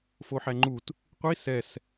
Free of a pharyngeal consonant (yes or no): no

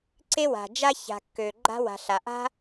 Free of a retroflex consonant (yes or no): yes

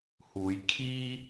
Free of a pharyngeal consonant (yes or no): yes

